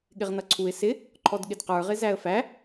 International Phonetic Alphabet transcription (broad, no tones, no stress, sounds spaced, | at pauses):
ɠ ɪ ʁ n ʌ ǀʰ u ɪ̯ s ɪ | ǃʰ ɔ d ɠ ɪ d q ə˞ ʁ ɪ z æ ə̯ f æ